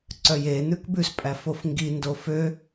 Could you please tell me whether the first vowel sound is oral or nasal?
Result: oral